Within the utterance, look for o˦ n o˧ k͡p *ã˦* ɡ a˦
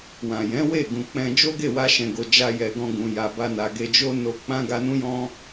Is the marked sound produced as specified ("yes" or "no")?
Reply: yes